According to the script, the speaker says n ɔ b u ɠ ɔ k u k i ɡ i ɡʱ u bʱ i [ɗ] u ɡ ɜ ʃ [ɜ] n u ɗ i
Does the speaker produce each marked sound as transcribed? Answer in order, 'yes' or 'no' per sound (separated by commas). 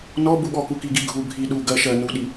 yes, yes